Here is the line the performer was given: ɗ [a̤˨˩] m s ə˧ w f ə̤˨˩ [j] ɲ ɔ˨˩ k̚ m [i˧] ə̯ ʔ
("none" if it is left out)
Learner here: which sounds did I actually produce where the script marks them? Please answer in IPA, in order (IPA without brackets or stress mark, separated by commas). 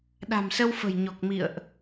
a̤˨˩, j, ḭ˧˨